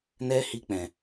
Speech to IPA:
n ɛ˧ h i˧ k͡p ɛ̃˨

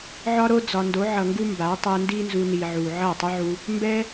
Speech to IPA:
ʕ ɒ˦ ɾ o˦ d͡z ɒ˨ n d o˨˦ ʕ ʌ˨ ŋ ɡ u˦ m b a˨˦ tˤ ɛ˧ n d i˦ n z u˧ n i˨ ʕ u˨ ʕ ʌ˦˨ tˤ u˦ ʕ u˧ | m b ɛ˦

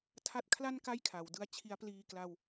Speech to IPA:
tʰ a˥˩ t̚ kʰ l a˥˩ n k a˥˩ j kʰ a˩˦ w d ɯ˧ a̯ t͡ɕʰ i˦˥ a̯ p l iː˧ k l a˧ w

